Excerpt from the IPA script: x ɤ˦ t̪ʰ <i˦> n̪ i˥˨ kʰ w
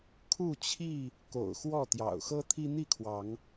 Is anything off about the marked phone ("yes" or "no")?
no